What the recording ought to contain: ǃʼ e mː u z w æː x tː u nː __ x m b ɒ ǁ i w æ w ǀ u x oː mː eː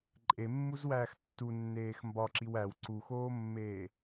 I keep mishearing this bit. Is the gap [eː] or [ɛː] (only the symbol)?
eː